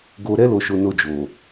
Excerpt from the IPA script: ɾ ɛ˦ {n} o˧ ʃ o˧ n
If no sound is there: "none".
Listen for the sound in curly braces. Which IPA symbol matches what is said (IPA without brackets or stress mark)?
l